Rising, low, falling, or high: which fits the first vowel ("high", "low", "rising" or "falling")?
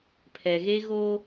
low